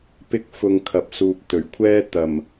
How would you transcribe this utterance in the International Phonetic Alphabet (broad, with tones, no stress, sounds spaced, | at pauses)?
p ɪ˥ k̚ f ʊ˧ ŋ kʰ ɐ˨ p̚ s uː˧ p̚ t̪ ɵ˨˩ ɥ kʷʰ ɛː˥ t̪ ɐ˨˩ m